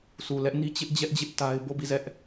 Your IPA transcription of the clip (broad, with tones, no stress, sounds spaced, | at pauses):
s u˨ l ɛ˦ ʔ n i˦ t͡ɕ ɪ˦ ʔ d͡ʑ ɛ˦ ʔ d͡ʑ ɪ˦ ʔ t a˦ ɪ̯ b o˦˨ b i˦˨ z ɛ˦ ʔ